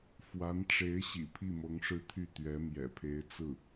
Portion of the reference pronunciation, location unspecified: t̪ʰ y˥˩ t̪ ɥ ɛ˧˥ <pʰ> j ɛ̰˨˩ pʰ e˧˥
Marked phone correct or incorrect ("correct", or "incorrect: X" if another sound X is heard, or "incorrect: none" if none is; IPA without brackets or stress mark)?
incorrect: m